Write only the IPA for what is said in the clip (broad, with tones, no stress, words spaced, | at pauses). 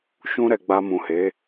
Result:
ʃũ˧ɾɛ˨ ɡ͡ba˧mũ˨he˨˦